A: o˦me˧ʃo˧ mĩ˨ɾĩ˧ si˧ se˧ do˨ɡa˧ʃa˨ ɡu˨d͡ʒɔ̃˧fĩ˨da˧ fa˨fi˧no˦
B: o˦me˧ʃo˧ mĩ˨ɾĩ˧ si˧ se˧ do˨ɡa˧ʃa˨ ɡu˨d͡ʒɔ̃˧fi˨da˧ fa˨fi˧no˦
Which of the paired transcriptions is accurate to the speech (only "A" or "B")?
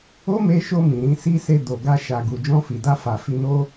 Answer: B